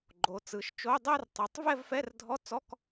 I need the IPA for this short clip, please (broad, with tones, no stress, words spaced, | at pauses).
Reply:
ɡ͡ǃo˩˧t͡sɯ˩˧ʃt͡ʃo˧˥˧ dˤɜ˥˧rtˤɯ˩˧tˤ vɛ˥˧vfɛ˧˥˧rdʱɔ˧˥˧t͡sɔ˧˥˧k